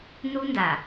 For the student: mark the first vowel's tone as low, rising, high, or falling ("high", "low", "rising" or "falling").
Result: high